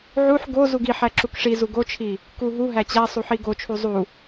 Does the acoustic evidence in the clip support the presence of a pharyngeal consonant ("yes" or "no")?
yes